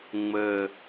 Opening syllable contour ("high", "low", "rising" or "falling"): low